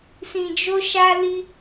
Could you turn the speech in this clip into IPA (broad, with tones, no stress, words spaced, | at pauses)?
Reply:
sĩ˨d͡ʒo˧ʃa˧li˧